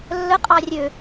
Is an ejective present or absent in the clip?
present